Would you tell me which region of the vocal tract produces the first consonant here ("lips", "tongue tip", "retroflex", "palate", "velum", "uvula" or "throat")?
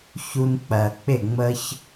palate